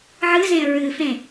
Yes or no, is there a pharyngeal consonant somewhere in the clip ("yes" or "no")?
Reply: yes